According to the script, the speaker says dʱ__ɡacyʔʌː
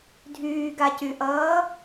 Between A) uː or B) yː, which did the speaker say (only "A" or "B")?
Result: B